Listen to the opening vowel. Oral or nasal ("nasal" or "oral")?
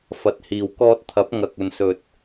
oral